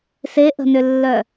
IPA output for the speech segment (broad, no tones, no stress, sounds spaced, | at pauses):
s e ʔ ə̤ n ʏ lː œ